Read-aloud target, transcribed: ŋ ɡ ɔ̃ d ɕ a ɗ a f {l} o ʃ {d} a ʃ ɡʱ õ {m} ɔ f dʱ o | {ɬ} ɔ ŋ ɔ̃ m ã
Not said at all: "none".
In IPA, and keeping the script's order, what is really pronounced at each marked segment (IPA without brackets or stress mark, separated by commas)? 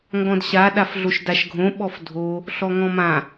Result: ɮ, d, ɓ, ɬ